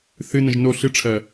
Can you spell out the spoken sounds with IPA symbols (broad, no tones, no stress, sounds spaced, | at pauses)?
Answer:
θ ɨ n ə̃ ʒ n o ɬ ɨ ʈ͡ʂʰ ɜ